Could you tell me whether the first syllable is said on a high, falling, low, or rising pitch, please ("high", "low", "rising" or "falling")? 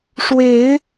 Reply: rising